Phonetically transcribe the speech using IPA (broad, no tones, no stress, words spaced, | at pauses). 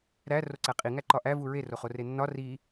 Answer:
ɾæ roǀæqʼi ŋæǃɒʔæ vuɹe roχorenːɒ ri